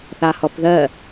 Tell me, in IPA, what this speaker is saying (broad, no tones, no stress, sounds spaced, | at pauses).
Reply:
θ a h ɔ p ð ɜ